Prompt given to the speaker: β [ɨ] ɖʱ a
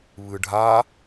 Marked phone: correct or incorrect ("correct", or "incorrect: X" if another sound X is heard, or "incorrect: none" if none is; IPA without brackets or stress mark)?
correct